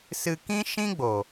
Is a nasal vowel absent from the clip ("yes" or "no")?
no